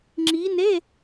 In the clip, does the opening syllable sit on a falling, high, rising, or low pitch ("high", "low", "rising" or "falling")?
rising